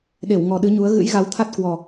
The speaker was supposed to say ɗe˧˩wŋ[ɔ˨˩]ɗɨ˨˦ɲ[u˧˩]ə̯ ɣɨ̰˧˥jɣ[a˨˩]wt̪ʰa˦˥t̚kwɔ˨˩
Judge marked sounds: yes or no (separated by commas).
yes, no, no